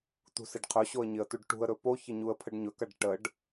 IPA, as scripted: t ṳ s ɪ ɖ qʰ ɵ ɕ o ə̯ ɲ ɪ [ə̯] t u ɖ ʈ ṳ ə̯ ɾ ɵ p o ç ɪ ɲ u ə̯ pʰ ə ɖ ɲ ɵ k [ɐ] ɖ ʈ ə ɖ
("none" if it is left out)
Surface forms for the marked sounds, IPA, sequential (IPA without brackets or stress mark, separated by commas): ə̯, ɐ